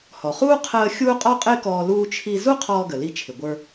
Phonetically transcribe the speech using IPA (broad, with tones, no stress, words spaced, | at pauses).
hɔ˩χuː˥ qʰəː˧ xʲuː˥qʼɔ˥qʼɪː˥kɔː˧ luː˧t͡ʃʰi˧ zu˥qʰɔː˧ɡə˩ li˧t͡ʃʰɪ˩ɡʷə˞˧